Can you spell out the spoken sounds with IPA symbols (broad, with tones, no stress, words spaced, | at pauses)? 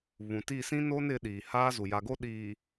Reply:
βũ˨ti˦˨sĩ˦ no˦nɪ˨˦ ɗiː˨haː˦zu˨ ja˨ɡo˦˨ɗiː˨